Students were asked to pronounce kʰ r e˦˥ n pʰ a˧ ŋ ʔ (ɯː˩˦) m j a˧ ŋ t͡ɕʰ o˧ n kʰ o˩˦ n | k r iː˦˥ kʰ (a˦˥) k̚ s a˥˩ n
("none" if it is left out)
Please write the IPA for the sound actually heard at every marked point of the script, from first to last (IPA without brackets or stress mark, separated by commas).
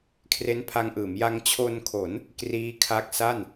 ɯː˩˦, a˦˥